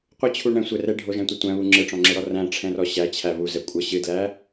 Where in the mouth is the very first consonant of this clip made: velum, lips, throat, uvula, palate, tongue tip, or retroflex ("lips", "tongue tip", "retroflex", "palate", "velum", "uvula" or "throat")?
uvula